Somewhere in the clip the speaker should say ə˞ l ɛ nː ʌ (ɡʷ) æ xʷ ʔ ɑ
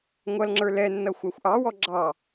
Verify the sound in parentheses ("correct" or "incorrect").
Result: incorrect